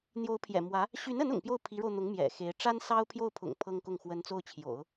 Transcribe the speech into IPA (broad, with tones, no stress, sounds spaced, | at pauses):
n̪ j o˧˥ ʊ̯ pʰ j ɛ̰˨˩ m w ä˧˥ | ɕ y˧˥ n ə˧˥ n ʊ̰˨˩ ŋ p j o˥˩ ʊ̯ pʰ i˧˥ ɻ o˧ ʊ̯ n̪ ʊ˧˥ ŋ m j ɛ̰˨˩ x e˧˥ ɪ̯ ʈ͡ʂ a˥ n s ɑ˥ ʊ̯ pʰ j o˥˩ ʊ̯ pʰ ʊ̰˨˩ ŋ pʰ ɤ˥ ŋ k ʊ˥˩ ŋ x w ə˥ n t͡s o˥˩ ʊ̯ t͡ɕʰ j o̰˨˩˦ ʊ̯